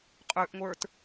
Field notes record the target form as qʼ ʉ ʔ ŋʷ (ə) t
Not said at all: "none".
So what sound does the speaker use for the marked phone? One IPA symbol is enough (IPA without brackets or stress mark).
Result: ə˞